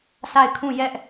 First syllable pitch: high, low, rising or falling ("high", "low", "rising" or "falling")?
falling